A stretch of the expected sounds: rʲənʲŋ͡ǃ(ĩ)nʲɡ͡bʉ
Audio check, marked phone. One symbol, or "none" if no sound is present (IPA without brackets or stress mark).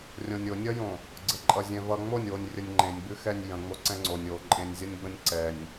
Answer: ẽ